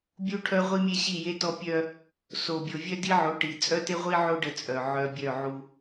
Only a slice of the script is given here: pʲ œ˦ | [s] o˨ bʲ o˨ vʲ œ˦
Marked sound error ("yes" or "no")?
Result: no